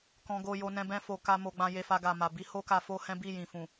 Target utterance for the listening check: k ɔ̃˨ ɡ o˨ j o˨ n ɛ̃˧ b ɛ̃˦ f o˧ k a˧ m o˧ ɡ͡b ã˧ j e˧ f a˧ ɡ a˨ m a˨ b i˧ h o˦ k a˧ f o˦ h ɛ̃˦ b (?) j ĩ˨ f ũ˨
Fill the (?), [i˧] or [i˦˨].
i˦˨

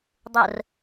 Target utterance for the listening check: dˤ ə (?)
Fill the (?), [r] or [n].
r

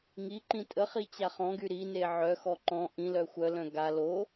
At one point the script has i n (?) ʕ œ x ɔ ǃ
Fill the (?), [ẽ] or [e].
e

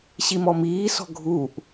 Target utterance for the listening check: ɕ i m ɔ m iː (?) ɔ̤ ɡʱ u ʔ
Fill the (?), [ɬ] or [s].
s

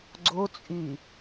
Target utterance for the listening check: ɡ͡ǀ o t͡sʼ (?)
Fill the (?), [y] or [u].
y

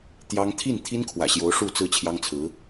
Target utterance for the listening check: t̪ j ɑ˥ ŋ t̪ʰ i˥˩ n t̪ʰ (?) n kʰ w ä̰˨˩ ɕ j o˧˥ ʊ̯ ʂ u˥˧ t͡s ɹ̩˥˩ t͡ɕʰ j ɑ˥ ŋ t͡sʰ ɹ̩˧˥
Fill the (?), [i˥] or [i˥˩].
i˥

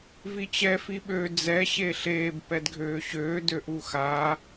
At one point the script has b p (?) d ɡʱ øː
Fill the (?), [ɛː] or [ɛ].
ɛ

